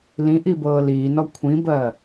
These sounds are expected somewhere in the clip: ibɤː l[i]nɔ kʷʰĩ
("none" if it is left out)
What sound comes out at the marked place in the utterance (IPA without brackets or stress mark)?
iː